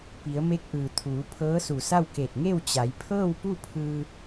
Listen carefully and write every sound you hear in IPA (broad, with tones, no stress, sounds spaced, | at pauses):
p i˩˧ ə̯ m e˧˥ k̚ ʔ ɯː˩ t̪ʰ uː˩˧ pʰ ɤː˧˥ s u˧˩ s a˥˨ w k e˧˩ t̚ ŋ e˥˨ w t͡ɕ a˩˧ j pʰ ɤː˥˨ w p u˥˨ pʰ ɯː˧